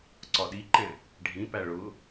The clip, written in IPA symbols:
ǀ ɒ ɗ i ǃ ɛ̃ | ɖʱ ĩ p æ ɭ ʊ

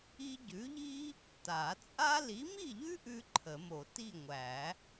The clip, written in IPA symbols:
i˥ ɟ ʉ˨˥ ʎ i˥ | t a˨˩˦ t͡sʼ a˥ l i˨˥ m i˥˨ ʎ ʉ˥ ʔ ʉ˥ ǃʰ ə˨˩˦ m o˨˩˦ t i˥˨ ŋʷ æ˨˩˦

